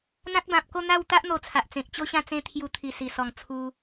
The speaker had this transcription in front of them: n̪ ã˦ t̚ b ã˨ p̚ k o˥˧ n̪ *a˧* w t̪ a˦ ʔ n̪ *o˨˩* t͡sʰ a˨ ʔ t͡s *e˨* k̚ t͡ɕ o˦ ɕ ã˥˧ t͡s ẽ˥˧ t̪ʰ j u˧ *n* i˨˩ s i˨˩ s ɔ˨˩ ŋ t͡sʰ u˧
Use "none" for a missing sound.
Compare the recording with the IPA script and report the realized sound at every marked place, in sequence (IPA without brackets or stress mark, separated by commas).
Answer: a˥˧, o˨˩, ẽ˨, t̪ʰ